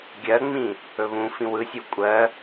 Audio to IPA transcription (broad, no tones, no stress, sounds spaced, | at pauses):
ɡʲ ɜ ŋ͡m ĩ | ɵ β ũ f ĩ w ɯ sʲ u kʷʼ ɜ